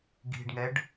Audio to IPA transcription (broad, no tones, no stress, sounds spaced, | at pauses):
ɡ i̤ ɖ ŋ ɛ ɖ